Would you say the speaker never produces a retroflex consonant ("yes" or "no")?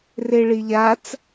no